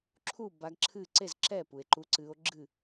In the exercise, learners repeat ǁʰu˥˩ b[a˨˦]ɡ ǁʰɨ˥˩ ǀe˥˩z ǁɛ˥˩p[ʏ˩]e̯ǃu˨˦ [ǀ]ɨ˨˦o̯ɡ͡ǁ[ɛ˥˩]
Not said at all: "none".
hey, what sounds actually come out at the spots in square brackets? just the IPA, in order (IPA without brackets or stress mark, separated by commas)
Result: a˨˦, u˩, ǀ, ɨ˥˩